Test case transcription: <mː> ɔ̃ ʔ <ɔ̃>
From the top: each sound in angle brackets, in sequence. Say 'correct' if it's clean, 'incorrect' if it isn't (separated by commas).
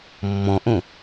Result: correct, incorrect